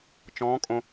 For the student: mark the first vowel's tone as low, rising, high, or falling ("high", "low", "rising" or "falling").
rising